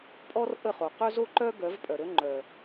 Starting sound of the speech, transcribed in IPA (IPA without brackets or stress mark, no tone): pʼ